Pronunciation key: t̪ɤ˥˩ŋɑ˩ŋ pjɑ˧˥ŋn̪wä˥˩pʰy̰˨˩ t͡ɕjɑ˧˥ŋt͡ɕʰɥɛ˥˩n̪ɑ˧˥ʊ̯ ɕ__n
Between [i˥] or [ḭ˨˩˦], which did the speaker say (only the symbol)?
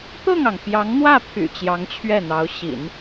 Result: ḭ˨˩˦